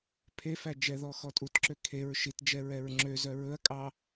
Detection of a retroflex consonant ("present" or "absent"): absent